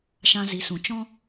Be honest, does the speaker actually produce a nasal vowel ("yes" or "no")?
yes